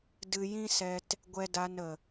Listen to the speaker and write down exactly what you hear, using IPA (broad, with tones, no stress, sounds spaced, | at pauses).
d ɨ˧ j ĩ˦ s ɛ˧ t | ɡʷ ɛ˧ d a˧ n ə˨